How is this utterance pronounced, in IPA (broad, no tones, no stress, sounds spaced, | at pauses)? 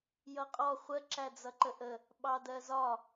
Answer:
j ʌ qʼ ɔ χʷ ə ǁ æ d͡z ʌ ǃ ə ʔ ə | ɓ ɑ d ɜ z ɒ